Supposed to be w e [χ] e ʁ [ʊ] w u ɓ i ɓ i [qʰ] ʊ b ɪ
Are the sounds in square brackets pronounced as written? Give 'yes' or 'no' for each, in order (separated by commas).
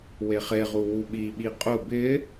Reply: yes, no, no